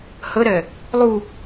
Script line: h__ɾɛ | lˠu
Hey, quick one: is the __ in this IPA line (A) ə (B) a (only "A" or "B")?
A